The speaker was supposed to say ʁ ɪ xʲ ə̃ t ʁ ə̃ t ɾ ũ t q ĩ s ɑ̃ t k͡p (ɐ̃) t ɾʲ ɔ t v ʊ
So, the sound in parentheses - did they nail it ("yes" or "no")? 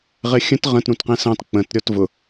no